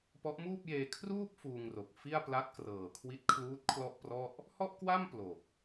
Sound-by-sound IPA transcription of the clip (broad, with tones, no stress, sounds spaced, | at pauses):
p ɔ˦˥ ʔ m uː˥˩ p̚ j eː˧ kʰ r uː˥˩ p̚ f uː˧ ŋ r o˨˩ k̚ f i˥˩ a̯ p l a˦˥ t̚ k r ɤː˨˩ kʰ w i˦˥ t̚ kʰ l uː˦˥ t̚ kʰ l ɔ˥˩ ʔ p r ɔ˥˩ ʔ | h ɔ˥˩ ʔ k w a˥˩ m p l o˨˩ k̚